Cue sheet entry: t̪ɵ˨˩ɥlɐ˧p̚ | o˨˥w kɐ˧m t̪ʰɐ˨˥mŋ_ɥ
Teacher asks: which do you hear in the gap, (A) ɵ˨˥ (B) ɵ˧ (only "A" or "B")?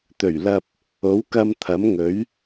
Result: A